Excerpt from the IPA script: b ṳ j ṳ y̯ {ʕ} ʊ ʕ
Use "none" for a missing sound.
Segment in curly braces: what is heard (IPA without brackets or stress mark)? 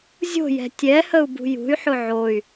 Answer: ħ